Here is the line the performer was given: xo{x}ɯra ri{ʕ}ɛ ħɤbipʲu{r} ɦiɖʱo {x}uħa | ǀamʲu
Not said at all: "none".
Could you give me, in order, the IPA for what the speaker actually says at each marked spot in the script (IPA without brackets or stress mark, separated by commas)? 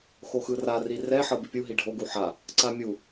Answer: x, r, none, ɡ